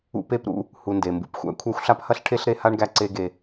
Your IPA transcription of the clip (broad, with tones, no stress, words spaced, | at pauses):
ṵ˦pe˥pɾṵ˦ | hu˨nde˩mbṵ˨p xʷæ̰˥kʷʰæ˦xʷɬa˥phɐ˥ɬ ʈʰe˥ɬɾe˦ha˥ɳ ɡæ˦ǀe˦ɡe˨